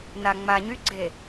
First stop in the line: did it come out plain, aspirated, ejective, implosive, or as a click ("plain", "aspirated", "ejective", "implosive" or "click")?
click